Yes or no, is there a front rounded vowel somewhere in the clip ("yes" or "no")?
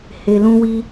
no